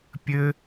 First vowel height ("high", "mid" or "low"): mid